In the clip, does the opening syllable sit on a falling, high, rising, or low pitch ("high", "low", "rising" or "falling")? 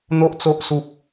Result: high